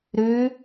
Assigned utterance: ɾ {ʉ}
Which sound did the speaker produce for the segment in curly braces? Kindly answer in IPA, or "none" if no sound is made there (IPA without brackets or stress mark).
ʉ